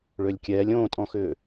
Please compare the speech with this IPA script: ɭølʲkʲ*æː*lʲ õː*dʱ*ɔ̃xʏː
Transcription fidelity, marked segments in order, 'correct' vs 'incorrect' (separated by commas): incorrect, incorrect